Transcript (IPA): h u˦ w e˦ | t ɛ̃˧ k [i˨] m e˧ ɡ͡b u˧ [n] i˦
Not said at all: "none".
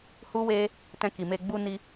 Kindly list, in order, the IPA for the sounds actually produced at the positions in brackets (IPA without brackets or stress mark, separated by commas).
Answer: i˨, n